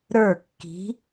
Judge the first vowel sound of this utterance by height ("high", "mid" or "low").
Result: mid